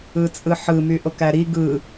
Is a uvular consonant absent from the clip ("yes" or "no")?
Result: yes